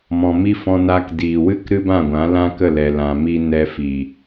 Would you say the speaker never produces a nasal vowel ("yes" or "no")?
no